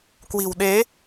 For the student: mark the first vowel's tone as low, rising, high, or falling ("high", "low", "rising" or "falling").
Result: low